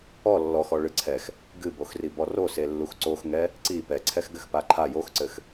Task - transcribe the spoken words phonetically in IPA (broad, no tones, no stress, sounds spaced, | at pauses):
ɔ lː ɔ x ɔ ɭ ɨ ǀʰ ɛ x | ɡ ɨ b o x r i b ɔ r o s e lː u x ǀ o x ŋ ɛ | ǀ i p ɛ ǀʰ ɛ x ɡ ɘ x p a ǃʰ a j o x ǀ ɘ x